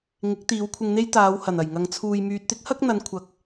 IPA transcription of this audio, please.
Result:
ŋɪ˨˥k̚t̪iː˨˧wkʷʰɪ˧ŋn̪e˥j t̪aː˨˧whɐ˨˩nɐ˨˩jŋɐ˨ŋ t͡sʰuː˨j myː˨t̚t̪ɪ˥k̚hɐ˥k̚n̪ɐ˨˧n kʷʰɐ˨k̚

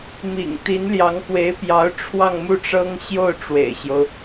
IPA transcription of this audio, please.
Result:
mḭ˨˩ŋ t̪i˧˥nljɑ˧˥ŋkwe˧˥ɪ̯pjɑ˧˥ʊ̯ ʈ͡ʂʰwɑ˥˧ŋmu˥˩ʈ͡ʂɤ˥ŋ ɕjo˥˩ʊ̯ʈ͡ʂwḛ˨˩ɪ̯ɕjo˦ʊ̯

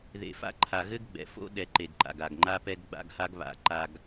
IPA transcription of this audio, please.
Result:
ðḛ˨fa̰˦ ǃʰa˨ɣɘ˦ɡɡ͡bɛ̰˨ fo̰˦ɗɛ˨ ǃe˨ɡǃa̰˨ɡ a˨ɡŋ͡ǃa˦pɛ˦ɡ ɡ͡ba̰˦ɡha˦ɡ βa̰˨ ǃa˨ɡ

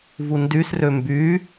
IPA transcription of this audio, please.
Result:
vundysrø mby

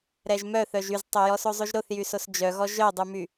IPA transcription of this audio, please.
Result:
ɾɛʒmœθœʒ yztˤojɔso zˤʉʒɾoθjysos d͡ʒœɣɔ ʒœdˤʉmy

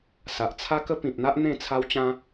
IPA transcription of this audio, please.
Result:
sa˨ʔt͡sʰa˦kə˦ pĩ˨p̚n̪a˦ʔ n̪ẽ˥˧t͡sʰa˦wt͡ɕã˦

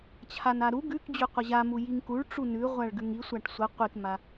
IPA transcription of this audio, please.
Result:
t͡ɕʰanaɾu ɡʉkd͡ʑʉ qʷʌʑamu jiŋkuɭ ʈ͡ʂunʉʁʷaɭ ɡʉŋi sʷaʈsʷʌ qʷikma

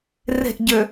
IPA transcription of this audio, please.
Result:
re̤ʔɟø

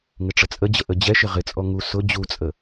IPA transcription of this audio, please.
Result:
ŋɪʈ͡ʂət͡sʼəd͡ʑə ʔəd͡ʑɛʃɪ ʁɪt͡sʼɔ ŋu sʊ d͡ʑut͡sʼə

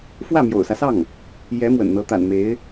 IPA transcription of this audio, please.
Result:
fwä˥˩mjo̰˨˩ʊ̯sä˦sɑ˥˩ŋ | jɛ˧˥ mwə̰˨˩nn̪ɤ˧˥t̪a̰˨˩n me˧˥ɪ̯

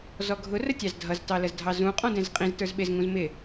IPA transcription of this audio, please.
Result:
zɔɡʱʊ rətʲɑzdʱʌz tɑləzdʱɑzũ qʼɔ̃dɛ̃zqʼĩz tə˞zɓɪz ŋũzmɪ

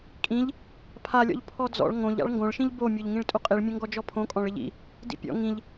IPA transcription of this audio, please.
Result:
kʼĩʎ | pʰalʲɔ̰ʎ pʰɔd͡zɔ̰ɭ ŋõʎ a̰ɭŋɡõɭʃĩʎ bomʲoʎŋĩɭ tʼuqʼiɭmʲõ ŋɡɔd͡ʒɔpʰõkʼɔ̃ɭ ɪʎḭ | dḭpʲɔ̰ ŋĩʎ

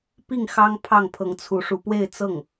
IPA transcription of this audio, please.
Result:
pi˥˩ŋxɑ˥ŋpʰɑ˥˩ŋ pʰɤ˧˥ŋt͡sʰu˧˥ʂu˧˥pwe˥˧ɪ̯ t͡sɤ˥˩ŋ

